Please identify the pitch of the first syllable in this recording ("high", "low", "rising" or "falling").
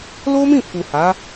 high